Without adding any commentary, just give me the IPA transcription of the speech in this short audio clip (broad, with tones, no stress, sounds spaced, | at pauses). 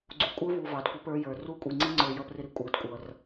ɡ͡ǀ u˨ kʷʼ ə˞˦ v u˨ v ɑ˨ d kʷ ɪ˦ p ə˞˦ j ə˞˨ r u˦˨ kʷʼ i˨ ŋ͡ǀ i˦ ŋ͡ǀ ə˞˨ j ʌ˦ p r ɪ˦ ɾ i˦ kʷʼ ə˞˨ d kʷʼ ʌ˨ r